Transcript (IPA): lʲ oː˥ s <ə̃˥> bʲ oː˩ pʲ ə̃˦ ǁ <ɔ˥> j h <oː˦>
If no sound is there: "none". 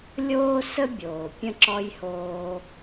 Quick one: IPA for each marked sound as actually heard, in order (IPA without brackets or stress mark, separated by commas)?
ə˥, ɔ˥, oː˦